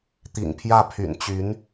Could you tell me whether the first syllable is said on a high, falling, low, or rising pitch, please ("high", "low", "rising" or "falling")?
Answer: low